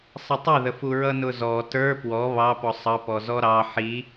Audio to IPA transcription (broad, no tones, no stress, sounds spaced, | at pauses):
sˤ ə tˤ ʊ ð ə f u ɹ ʌ n ʊ z ɔ t ə˞ p w ɔ β ɑ p ɔ sˤ ʌ p ɔ z ɔ ɾ ɑ ħ i